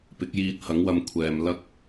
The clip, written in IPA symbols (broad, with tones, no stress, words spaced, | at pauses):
pɪ˨˥k̚ jiː˧t̚ hɐ˨˥ŋwɐ˧m kʷʰɛː˨m lɐ˥k̚